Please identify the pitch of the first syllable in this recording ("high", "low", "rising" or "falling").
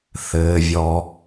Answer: low